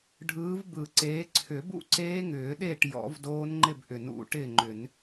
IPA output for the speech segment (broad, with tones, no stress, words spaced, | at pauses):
ɖʱɯː˨˦vbɯ˨˩˦ǀeː˨˦ ǀʰʏ˨˩˦bṵ˥˨ǀeː˦˥ ŋʏː˨˩˦ɗe˥˨ʈ jɔ̰˨˩˦vdoː˦˥nŋ͡ǃɪ˥˨b ʔʏ˨˩˦nṵ˨˩˦ ʈɪ˥˨ŋ͡ǃʏ˨˩˦n